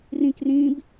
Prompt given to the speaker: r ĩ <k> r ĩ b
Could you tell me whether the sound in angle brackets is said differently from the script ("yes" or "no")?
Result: no